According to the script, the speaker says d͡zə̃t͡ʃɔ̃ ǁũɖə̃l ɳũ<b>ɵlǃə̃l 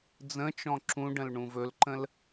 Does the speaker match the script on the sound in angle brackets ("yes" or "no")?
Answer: no